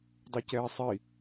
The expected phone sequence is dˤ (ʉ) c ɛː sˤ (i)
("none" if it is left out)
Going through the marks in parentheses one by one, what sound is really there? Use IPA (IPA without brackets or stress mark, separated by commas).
ʉ, i